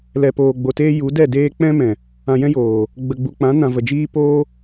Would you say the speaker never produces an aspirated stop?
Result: yes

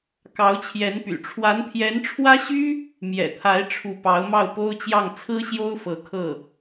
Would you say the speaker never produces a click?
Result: yes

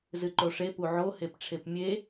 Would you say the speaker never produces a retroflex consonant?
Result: no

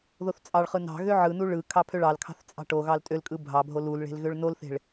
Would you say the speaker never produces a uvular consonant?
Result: no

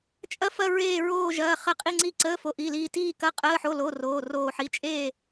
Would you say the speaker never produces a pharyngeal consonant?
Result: no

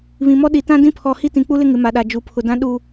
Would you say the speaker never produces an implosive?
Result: no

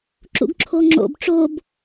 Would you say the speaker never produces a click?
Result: no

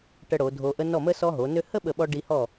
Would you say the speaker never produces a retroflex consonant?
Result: no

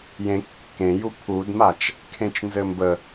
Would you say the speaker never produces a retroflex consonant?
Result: yes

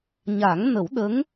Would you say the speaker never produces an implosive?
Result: no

